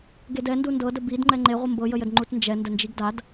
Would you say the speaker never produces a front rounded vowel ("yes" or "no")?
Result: yes